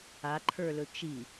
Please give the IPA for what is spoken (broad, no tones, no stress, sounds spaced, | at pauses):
a ǃʰ ə˞ l ɵ t͡ʃ i